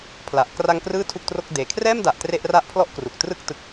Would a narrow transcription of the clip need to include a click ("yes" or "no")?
no